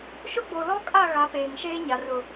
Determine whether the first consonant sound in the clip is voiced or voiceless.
voiceless